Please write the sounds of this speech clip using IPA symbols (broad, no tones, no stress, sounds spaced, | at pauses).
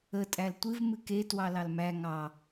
ə tʼ æ l tʷ ɨ v m ɨ k e t w ɑ l ɑ l m æ ŋ ɑ